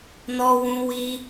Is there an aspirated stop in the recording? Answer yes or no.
no